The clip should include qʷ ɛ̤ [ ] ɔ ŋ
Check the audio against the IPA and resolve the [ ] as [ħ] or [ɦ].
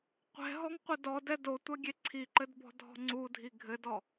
ɦ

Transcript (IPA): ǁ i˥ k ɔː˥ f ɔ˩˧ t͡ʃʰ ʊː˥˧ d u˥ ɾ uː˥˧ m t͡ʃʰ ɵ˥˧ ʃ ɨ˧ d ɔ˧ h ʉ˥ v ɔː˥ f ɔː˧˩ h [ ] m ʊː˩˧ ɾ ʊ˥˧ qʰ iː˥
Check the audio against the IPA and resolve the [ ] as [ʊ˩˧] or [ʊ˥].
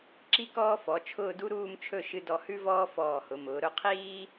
ʊ˩˧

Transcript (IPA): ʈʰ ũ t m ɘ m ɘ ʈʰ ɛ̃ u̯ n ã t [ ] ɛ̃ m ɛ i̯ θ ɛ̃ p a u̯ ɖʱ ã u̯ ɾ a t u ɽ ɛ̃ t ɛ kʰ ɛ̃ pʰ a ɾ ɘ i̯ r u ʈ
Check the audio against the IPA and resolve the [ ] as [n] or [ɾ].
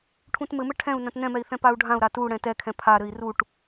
n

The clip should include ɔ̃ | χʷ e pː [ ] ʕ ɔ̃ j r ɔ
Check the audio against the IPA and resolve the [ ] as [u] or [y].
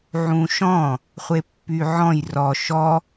y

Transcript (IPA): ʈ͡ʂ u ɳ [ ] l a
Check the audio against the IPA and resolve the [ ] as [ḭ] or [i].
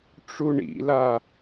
ḭ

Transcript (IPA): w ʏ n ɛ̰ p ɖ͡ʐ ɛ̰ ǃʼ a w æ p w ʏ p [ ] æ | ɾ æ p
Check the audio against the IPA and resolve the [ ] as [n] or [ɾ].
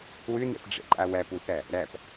ɾ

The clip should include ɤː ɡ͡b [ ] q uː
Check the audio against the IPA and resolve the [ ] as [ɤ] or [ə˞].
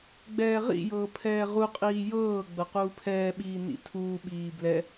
ɤ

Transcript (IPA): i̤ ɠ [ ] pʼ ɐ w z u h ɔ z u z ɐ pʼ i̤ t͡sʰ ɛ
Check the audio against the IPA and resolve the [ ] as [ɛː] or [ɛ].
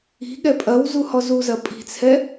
ɛ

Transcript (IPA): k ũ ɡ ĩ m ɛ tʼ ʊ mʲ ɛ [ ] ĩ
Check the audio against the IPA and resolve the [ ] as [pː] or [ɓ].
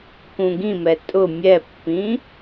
pː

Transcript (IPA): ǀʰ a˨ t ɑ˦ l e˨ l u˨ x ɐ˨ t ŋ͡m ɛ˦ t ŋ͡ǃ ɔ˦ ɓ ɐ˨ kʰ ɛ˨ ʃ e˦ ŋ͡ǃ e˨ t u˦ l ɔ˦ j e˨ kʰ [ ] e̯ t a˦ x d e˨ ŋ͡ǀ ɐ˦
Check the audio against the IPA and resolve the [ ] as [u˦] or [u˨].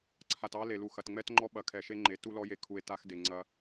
u˨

